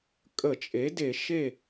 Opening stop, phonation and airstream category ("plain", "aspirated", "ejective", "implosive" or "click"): ejective